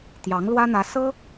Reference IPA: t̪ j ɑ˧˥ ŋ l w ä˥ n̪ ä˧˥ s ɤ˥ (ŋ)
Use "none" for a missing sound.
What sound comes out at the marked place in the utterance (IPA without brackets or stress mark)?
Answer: none